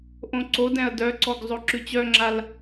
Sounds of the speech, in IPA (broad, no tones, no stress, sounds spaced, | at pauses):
ʔ õ ǀ o d ɛ̃ ɐ̯ d œ ǀ ɔ ɡ zˤ o ǁ ʉ t͡ɕ œ ŋ͡ǁ a l